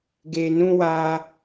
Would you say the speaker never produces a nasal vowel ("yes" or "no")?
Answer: no